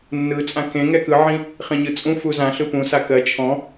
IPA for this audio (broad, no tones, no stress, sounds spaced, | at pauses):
nː ɯ t͡sʼ ã k ẽ ŋ ɛ k ɯ ʕ ĩ | χ ĩ ɲ ɯ t͡sʼ ũ f u z ã ɬ ɯ p ũ s a k ɜ t͡ʃʰ ɔ̃